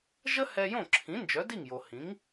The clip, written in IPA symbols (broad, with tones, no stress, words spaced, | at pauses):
ʒə˥hɛ˧jõ˥˩ǁʰĩ˩˥ nd͡ʒœ˩˥di˥˩ŋjo˩ hĩ˩˥ŋ